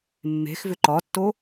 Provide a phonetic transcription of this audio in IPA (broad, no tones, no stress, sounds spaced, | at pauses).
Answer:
mː e̤ x v ʏ ǃ ɒ tː o